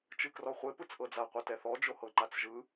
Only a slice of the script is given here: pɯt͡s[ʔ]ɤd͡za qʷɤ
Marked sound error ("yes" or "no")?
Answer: no